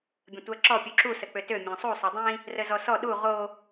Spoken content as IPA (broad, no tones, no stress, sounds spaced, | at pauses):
bʲ ə̃ tʷ æ ǁ ɔ pʲ u ǁ u s ə k͡p ø t ø mʲ ɔ̃ sˤ u sˤ œ dˤ ĩ | r ə z ɔ s ɔ ɗ u ʁ o